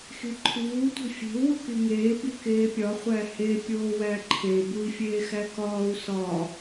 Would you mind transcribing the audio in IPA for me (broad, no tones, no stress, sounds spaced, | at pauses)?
x i ǃʰ uː tʷ e̤ fʲ e̤ u̯ w u k i ŋ eː b i k eː pʲ ɒ χʷ æ h e pʲ oː w æ ǃʰ e b u i̯ fʲ eː x æ k ɒː u̯ s ɒ